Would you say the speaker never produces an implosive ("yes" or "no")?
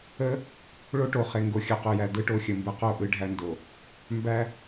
yes